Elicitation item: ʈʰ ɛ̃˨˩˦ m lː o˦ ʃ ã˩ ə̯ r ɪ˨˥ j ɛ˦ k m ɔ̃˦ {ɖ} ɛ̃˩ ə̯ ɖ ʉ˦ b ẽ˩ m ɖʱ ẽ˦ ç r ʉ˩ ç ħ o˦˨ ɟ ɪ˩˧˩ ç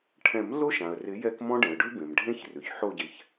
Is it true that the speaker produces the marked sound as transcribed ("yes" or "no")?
yes